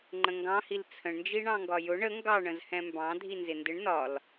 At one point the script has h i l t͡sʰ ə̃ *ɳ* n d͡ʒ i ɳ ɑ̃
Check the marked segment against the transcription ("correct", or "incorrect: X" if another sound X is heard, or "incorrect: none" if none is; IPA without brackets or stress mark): correct